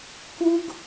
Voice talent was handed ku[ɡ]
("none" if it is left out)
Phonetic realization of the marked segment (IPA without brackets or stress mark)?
ɡ